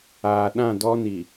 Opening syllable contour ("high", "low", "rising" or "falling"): low